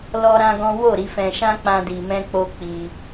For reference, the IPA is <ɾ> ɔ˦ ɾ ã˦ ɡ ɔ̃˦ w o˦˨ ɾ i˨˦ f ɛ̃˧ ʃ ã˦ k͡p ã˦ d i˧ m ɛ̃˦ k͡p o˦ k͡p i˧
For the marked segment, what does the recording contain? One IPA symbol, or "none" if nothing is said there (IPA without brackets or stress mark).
l